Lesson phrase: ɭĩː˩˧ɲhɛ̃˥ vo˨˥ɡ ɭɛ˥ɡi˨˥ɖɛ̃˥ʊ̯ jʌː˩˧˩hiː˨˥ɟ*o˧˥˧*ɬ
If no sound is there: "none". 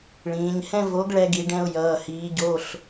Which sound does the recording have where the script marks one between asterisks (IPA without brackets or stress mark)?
o˧˥˧